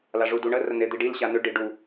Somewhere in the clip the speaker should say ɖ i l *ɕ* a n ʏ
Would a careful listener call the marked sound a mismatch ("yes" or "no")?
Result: no